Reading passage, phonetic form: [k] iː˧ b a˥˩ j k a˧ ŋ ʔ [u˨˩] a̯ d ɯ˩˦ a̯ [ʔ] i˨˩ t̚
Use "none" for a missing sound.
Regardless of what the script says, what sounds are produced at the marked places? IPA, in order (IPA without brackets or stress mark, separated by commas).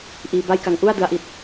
ʔ, u˥˩, ʔ